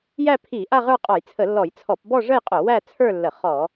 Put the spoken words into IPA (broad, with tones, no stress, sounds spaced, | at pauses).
j æ˥˧ pʰ i˧˩˧ ʔ a˥˧ ʁ ə˞˥˧ qʼ ɔ˧˩˧ j t͡sʰ ə˧˩˧ lː ɔ˧˩˧ j t͡sʰ ɔ˧˩˧ p b ɔ˥˧ ʐ ə˥˧ j qʼ o˧˩˧ w æ˥˧ t͡sʰ ə˞˥˧ lː ə˧˩˧ χ ɔ˧˩˧